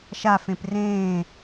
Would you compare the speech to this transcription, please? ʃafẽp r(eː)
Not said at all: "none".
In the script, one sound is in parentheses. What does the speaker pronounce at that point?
ẽː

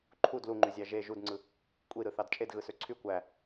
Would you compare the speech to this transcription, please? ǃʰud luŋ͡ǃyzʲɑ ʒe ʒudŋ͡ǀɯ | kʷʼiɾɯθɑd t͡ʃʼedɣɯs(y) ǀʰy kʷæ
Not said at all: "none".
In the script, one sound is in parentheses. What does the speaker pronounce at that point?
ø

